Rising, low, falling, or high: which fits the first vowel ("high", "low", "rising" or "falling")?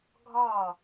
falling